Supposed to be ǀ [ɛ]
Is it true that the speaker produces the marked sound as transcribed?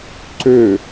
no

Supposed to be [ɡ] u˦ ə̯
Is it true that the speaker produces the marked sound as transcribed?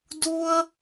no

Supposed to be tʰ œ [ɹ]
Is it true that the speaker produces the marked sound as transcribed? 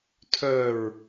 yes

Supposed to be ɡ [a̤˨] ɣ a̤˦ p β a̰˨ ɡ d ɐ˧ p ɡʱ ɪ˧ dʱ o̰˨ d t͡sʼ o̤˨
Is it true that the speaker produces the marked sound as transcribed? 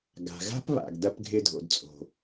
yes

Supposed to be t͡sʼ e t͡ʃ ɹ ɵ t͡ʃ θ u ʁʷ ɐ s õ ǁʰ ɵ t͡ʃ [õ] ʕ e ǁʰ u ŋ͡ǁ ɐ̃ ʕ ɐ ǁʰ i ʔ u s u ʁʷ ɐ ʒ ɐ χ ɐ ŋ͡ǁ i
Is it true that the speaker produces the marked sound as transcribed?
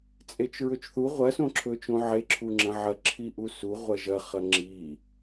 yes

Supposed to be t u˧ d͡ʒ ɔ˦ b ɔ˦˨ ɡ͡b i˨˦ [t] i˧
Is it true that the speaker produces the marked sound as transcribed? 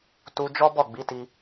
yes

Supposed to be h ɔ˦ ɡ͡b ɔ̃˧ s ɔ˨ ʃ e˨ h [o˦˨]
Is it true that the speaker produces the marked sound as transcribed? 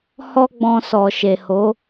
no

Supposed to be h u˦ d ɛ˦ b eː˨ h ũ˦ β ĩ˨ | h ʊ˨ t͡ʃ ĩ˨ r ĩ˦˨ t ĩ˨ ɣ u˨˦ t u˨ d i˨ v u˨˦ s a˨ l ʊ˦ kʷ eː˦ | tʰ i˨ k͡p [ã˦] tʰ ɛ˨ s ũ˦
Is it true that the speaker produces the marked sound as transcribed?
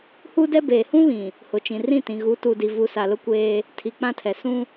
yes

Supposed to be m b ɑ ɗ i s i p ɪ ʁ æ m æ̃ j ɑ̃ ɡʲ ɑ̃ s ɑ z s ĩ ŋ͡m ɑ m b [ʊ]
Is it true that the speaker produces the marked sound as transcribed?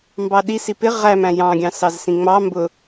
yes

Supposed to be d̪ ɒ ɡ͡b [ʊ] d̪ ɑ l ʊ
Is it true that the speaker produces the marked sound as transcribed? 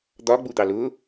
no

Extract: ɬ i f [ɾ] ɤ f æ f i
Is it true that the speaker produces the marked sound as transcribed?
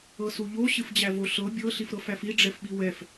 yes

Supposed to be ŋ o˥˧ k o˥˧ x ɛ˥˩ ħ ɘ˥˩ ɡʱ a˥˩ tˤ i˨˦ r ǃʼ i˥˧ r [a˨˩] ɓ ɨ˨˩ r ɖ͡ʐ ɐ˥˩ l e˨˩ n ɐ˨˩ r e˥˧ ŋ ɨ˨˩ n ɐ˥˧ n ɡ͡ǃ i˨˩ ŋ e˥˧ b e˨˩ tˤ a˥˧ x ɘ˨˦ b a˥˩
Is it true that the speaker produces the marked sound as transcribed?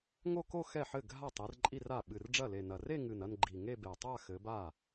no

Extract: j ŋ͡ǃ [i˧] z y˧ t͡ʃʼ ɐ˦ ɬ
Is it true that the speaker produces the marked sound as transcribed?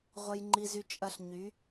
yes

